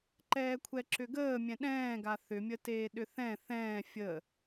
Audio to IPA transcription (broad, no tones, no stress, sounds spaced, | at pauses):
ǃ ɛː kʷʰ ɛ ǁ ʏ ɡ əː mʲ ɛ̃ ɗ ɛ̃ː ɡ a θ ʏ mʲ ə t eː ɗ ʏ θ ɛ̃ θ ɛ̃ː fʲ ə